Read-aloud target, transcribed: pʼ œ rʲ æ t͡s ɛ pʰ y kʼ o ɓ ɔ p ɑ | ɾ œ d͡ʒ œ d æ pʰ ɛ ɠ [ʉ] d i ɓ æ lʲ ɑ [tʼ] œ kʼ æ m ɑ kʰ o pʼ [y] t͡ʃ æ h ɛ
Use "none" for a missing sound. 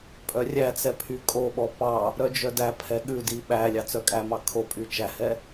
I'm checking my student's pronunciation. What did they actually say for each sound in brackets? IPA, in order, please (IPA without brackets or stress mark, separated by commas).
ʉ, t͡s, y